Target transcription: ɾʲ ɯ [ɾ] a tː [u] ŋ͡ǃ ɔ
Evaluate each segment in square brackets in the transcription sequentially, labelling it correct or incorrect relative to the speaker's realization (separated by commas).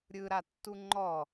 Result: correct, correct